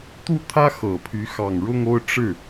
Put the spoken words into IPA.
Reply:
t̪ u˥˩ t̪ʰ ä˥ x ɤ˨˩ pʰ y˧˥ x ɑ˨˩ ŋ ɻ ʊ˥˧ ŋ o˥˧ ʊ̯ ʈ͡ʂ ɻ̩˥˩

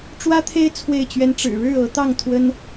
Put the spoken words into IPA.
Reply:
ʈ͡ʂ w ä˥ t̪ʰ e˥ ɪ̯ t͡sʰ w e˥˩ ɪ̯ t͡ɕ ɥ ɛ˥ n ʈ͡ʂ ɻ̩˨˩ ɻ ɻ̩˥˩ ɤ˧˥ t̪ ɑ˥˩ ŋ t̪ʰ w ə˥ n

